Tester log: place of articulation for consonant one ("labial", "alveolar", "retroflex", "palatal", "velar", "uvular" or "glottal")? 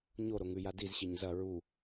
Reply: palatal